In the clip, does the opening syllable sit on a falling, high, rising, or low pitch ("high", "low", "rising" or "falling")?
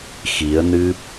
rising